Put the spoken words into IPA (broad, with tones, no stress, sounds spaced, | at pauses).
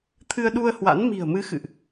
t̪ʰ ɨ˧ ə̯ ɗ u˧ ə̯ h w a̰˧˥ n m i̤˨˩ ə̯ m ɨ˨˦ x ɨ̰˧˨ ʔ